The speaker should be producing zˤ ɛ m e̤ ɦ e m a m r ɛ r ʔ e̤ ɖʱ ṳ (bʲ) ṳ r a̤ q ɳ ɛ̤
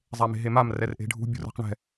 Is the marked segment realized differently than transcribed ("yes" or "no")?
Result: no